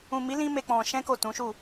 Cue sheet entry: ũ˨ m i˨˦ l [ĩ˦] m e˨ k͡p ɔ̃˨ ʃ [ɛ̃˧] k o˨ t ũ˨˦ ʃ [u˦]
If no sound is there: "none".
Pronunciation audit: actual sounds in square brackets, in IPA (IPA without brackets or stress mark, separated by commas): ĩ˧, ɛ̃˧, u˦˨